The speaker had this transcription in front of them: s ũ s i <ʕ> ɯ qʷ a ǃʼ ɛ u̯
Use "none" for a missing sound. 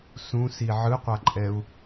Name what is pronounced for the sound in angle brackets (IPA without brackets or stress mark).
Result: ʕ